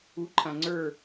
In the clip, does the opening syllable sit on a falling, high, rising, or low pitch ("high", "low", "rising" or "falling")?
rising